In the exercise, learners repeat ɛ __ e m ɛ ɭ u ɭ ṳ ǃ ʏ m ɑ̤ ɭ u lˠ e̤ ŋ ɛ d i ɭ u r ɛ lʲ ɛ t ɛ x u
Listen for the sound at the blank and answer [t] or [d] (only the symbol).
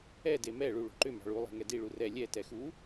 d